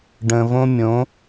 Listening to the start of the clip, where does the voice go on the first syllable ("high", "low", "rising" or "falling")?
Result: low